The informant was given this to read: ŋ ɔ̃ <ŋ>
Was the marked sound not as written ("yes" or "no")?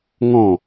yes